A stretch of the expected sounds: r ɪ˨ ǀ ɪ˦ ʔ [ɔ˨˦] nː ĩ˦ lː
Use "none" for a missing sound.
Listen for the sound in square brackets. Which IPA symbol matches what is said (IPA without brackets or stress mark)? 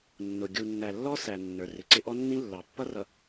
ɔ˦